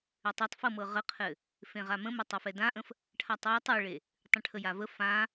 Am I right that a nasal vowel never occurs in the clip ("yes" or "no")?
no